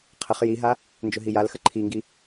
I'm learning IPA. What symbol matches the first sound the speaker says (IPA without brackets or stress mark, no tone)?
qʰ